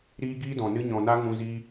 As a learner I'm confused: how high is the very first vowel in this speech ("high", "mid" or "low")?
high